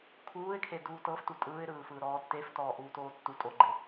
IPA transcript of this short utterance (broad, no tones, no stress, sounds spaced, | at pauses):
kʰ uː ɪ̯ kʰ e d uː t ɤ f t u tʼ ɯː ɪ̯ ɾ ɯː f ɯː ɾ ɔː tː e f t ɔː ʔ uː t oː tː u tʼ o ɡ͡ǃ e